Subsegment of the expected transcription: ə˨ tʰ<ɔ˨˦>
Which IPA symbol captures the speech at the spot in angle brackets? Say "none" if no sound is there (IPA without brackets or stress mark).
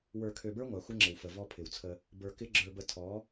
ɔ˨˦